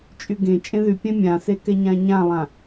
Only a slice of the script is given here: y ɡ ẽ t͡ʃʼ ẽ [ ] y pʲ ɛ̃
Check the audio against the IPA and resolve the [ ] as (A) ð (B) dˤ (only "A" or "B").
A